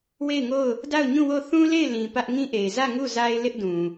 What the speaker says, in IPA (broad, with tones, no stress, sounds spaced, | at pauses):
w e˦˨ ɪ̯ ŋ o˦˨ ʊ̯ | d a˦˨ ʊ̯ ɲ ũ˦˨ w o˦˨ θ ũ˦ l e˦˨ ɪ̯ l ĩ˨ p ä˦ ʔ ŋ ĩ˦ ʔ e˨ ɪ̯ z ä˦˨ ŋ u˦˨ z a˦ ɪ̯ l ɪ˦ ʔ d ũ˨